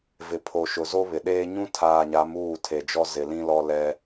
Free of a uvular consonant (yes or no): yes